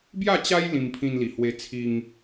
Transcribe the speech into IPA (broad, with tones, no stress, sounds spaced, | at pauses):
b j a˥˧ t͡ɕ a˦ j l ĩ˧ m pʰ ĩ˧ n l i˨˩ h w e˧ t͡sʰ i˧ ŋ